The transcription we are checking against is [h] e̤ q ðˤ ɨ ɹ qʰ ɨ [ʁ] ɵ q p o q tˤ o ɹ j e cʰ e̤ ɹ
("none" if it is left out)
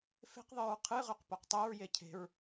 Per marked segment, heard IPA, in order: f, ʁ

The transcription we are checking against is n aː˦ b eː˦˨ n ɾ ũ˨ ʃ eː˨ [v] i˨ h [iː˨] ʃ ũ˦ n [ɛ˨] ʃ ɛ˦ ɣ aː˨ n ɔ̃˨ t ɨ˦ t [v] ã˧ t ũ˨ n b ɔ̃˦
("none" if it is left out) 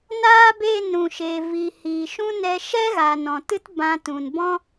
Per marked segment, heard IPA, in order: v, iː˨, ɛ˧, b

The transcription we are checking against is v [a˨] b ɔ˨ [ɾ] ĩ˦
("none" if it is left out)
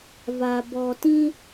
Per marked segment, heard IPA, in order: a˨, t

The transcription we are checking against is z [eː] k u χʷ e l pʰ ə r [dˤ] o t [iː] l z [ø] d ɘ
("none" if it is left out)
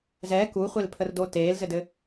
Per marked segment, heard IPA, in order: ɛː, d, eː, ɘ

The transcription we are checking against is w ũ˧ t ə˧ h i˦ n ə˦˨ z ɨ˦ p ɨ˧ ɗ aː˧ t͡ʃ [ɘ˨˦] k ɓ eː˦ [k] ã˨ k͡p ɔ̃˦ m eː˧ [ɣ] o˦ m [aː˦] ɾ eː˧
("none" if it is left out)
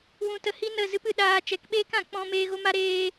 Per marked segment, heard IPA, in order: ɛ˨˦, k, ɣ, a˦

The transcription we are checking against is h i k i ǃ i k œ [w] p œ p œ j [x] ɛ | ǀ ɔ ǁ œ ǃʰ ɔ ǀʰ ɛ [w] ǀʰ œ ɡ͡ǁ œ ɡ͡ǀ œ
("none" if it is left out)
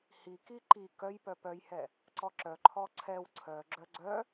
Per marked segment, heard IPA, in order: j, h, w

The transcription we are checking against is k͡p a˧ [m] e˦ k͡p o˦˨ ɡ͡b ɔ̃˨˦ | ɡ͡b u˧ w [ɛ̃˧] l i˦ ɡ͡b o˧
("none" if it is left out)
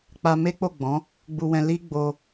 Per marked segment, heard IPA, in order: m, ɛ̃˧

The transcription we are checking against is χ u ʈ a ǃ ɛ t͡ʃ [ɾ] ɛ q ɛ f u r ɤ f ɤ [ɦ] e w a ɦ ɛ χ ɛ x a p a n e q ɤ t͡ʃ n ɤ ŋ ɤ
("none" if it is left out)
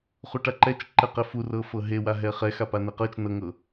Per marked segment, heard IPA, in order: ǃ, ɦ

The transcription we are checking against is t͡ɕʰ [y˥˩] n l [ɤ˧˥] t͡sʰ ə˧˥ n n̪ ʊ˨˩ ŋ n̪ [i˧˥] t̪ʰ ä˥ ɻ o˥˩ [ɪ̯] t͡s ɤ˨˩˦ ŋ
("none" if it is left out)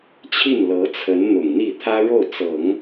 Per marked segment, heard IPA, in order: i˥˩, ɤ˧˥, i˥˩, ʊ̯

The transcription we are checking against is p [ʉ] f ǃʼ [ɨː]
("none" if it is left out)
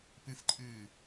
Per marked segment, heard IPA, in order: ɨ, ɨː

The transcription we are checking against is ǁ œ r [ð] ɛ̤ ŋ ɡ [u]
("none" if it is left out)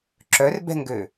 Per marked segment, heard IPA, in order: b, ø

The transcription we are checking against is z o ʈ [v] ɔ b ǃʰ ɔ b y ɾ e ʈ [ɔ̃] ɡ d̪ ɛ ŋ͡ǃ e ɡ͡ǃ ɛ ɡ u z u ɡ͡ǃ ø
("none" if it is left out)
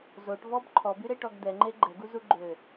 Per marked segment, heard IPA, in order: v, ɔ

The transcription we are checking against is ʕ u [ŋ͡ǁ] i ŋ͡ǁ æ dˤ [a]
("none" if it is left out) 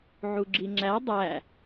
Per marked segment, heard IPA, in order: ɡ͡ǁ, æ

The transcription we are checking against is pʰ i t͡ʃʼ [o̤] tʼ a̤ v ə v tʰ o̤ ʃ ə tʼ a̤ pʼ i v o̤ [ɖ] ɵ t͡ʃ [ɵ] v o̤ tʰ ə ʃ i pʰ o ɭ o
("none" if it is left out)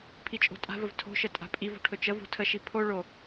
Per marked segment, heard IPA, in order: o̤, ʈʰ, ə

